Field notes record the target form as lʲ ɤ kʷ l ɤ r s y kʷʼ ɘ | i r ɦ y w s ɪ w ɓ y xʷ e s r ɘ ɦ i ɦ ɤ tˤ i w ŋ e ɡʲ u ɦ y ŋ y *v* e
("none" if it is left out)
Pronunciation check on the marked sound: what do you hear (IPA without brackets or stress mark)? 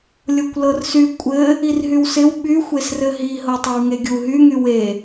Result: w